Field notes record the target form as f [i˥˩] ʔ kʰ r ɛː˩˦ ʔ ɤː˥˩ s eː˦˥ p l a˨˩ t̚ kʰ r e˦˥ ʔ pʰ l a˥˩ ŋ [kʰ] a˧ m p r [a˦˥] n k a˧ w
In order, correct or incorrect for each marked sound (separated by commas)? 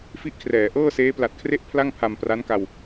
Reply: incorrect, incorrect, correct